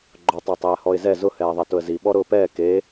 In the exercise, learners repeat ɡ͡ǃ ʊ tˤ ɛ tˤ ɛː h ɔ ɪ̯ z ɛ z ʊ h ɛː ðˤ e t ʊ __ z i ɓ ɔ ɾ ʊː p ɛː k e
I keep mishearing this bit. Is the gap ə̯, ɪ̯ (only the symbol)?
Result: ə̯